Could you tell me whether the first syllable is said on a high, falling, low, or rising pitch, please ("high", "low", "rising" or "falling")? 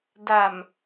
low